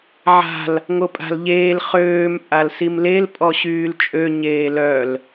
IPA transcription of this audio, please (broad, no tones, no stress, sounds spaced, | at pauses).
ʕ a̤ l | ŋ o pʼ a̤ l ʎ eː l χ øː m pʼ a l s i m l e l pʼ ɔ ɕ yː l t͡ʃʼ ø ɲ eː l œ l